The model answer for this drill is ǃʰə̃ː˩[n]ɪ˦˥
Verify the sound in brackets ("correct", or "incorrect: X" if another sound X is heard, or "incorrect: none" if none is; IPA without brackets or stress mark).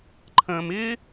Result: incorrect: m